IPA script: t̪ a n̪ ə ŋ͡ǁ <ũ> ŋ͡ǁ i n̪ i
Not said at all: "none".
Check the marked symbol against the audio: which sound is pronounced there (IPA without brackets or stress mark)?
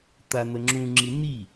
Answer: ũ